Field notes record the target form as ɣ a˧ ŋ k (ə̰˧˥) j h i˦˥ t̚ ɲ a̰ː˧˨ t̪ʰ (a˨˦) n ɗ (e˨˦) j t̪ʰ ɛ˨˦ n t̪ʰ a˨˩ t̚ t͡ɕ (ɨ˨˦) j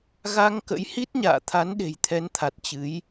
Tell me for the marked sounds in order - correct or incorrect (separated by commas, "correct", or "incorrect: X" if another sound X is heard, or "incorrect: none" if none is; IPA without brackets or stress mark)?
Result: correct, correct, incorrect: e̤˨˩, correct